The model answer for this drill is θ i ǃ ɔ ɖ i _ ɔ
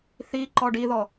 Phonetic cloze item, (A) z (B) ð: B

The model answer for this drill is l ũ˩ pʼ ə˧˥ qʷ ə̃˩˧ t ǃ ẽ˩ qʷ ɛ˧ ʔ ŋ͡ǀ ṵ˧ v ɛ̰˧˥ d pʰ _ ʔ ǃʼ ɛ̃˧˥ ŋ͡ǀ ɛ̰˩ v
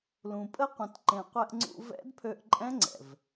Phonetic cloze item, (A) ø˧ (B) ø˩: A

